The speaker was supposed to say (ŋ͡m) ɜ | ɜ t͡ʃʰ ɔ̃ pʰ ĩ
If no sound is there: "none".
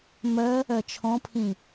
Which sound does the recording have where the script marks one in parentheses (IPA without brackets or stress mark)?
m